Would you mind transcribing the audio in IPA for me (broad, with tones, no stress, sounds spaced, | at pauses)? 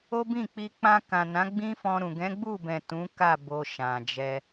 o˦ b ĩ˦˨ k͡p i˧ k͡p ã˧ k ã˨ n ã˨˦ ɡ͡b ĩ˦ f ɔ̃˧ ɾ ũ˨ ɡ ɛ̃˨˦ ɡ͡b u˦˨ b ɛ̃˨ t ũ˨˦ k a˦˨ b o˧ ʃ ã˨ d͡ʒ ɛ˧